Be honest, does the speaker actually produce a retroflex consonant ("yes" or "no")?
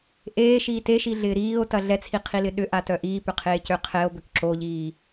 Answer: no